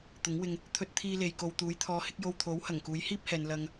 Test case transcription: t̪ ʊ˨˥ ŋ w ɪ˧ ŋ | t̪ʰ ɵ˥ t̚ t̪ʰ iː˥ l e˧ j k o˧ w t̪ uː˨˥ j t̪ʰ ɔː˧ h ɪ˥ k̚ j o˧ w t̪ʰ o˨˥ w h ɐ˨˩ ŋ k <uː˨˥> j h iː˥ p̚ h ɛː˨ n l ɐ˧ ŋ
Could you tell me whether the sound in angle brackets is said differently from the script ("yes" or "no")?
no